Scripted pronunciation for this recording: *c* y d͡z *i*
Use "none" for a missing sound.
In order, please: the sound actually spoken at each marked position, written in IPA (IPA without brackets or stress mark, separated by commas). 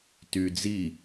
t, i